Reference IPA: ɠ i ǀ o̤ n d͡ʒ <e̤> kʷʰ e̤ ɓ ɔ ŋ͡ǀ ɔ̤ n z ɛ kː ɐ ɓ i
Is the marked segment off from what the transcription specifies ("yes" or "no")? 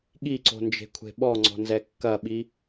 no